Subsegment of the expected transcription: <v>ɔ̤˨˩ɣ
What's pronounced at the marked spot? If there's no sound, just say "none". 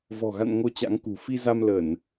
v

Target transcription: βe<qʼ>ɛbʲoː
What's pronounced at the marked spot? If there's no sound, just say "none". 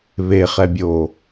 χ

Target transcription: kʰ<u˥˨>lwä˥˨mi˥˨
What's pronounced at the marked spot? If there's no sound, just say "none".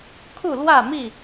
u˥˨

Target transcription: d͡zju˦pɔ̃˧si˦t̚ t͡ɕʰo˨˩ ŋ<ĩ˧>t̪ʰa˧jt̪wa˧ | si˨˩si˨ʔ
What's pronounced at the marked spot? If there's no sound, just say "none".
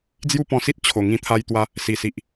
ĩ˧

